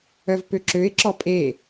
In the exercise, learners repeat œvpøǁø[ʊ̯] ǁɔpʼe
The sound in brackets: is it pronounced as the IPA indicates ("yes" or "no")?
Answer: no